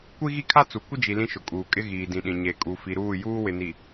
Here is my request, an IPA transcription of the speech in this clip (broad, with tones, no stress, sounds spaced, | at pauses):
kʷ i˦ ɣ i˦ kʰ a˦ t͡s u˨ kʷ ɪ˦ d͡ʒ i˨ l ĩ˦ ʃ ʊ˨ kʼ uː˨ kʼ ɪ˦ ɣ iː˨ d ĩ˨ ɗ ĩ˨ ɲ e˨ kʼ u˨ f i˨ ɾ uː˦˨ j uː˦ w ɪ˨ n i˨